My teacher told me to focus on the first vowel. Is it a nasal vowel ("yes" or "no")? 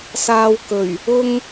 no